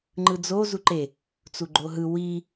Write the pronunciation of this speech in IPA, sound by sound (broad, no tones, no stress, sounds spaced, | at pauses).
ŋ͡ǃ ɯ d͡z o z u ǃ e | t͡s u ɡ͡ǃ o ɦ ɯ w i